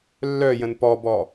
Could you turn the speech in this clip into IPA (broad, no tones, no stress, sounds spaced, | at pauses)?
lː œ j ə̃ n p ɔ b ɔ